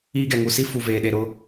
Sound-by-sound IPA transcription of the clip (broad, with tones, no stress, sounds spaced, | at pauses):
iː˦ ɡ ɛ˨ ŋ u˨ s i˦ f u˨ v eː˨ ɗ e˨ ɾ ʊ˦